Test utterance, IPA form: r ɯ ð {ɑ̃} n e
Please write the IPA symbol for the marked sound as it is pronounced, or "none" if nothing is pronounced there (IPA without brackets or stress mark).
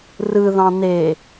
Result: ɑ̃